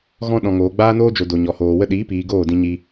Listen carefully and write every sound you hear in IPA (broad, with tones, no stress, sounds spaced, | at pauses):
ɣ ɔ̃˦ ɗ ɔ̃˧ ŋ oː˨ ɡ͡b aː˦ n oː˦ d͡ʒ o˨ d o˨ ɲ ɔ˨ h oː˨ w ə˦ ɗ iː˨˦ p iː˨ ɡ oː˦˨ d ĩ˧ ɲ i˧